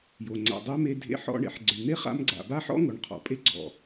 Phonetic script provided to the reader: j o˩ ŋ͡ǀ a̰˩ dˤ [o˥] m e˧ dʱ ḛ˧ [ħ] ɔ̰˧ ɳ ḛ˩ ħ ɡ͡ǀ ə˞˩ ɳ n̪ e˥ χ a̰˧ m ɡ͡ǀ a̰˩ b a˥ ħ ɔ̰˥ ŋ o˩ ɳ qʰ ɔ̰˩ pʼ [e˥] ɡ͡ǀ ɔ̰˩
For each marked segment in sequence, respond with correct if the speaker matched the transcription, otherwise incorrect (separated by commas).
correct, correct, correct